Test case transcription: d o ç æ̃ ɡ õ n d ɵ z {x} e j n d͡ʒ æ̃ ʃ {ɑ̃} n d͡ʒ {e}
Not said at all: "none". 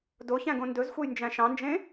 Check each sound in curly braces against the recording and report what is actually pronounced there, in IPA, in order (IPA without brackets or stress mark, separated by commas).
xʷ, ɑ̃, ẽ